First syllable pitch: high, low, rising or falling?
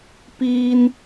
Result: high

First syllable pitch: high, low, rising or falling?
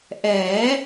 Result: rising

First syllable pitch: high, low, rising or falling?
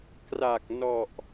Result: low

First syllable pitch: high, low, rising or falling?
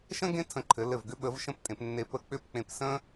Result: high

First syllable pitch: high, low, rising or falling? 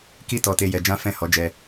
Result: high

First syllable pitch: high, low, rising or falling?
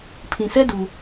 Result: low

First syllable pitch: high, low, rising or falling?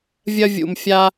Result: high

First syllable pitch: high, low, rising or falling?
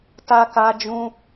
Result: high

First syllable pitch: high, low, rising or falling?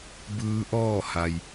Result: rising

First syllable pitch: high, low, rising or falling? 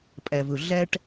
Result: low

